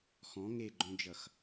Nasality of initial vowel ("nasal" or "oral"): nasal